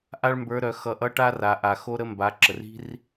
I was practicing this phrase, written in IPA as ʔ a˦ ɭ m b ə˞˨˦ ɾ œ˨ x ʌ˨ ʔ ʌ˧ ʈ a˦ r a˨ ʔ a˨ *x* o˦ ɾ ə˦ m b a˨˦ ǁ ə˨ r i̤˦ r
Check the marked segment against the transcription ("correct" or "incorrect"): correct